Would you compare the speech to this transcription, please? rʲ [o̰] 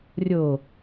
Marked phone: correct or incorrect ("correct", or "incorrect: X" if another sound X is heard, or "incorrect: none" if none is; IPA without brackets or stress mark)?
incorrect: o